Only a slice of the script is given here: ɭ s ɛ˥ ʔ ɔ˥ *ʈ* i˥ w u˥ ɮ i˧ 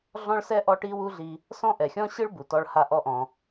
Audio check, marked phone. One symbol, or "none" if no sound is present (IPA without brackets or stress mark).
ʈ